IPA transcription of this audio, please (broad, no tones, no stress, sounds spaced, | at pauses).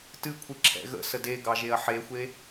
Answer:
t ɨ kʷʰ ɨ ǁʰ ɛ̰ ɣ ə̰ s ə d e ɡ ɑ ʒ e ɐ̯ ħ e xʷ e